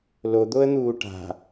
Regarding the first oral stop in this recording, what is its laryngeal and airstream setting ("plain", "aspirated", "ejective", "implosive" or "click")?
plain